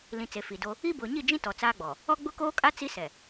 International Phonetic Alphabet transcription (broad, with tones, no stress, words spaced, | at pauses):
lĩ˨ t͡se˨fi˨do˦ | i˦bʊ˨ ɲi˦˨d͡ʒĩ˦ tɔ˨t͡saː˦ɡ͡bɔ˨ | ɔ˦ɡ͡bʊ˦koː˦kʼa˦ t͡si˦sɛ˨